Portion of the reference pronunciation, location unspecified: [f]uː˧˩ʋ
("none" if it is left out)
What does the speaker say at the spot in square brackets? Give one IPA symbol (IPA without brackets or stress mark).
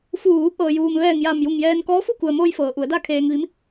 f